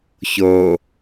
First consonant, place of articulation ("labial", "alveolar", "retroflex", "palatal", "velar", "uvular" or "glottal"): palatal